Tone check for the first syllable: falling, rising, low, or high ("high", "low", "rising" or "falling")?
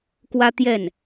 high